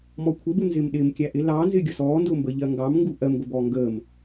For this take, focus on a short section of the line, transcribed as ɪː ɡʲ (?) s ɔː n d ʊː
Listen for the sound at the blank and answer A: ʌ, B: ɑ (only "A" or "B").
A